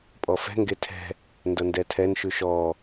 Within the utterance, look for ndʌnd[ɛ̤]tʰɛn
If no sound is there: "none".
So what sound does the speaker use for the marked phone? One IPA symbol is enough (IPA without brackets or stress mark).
ɛ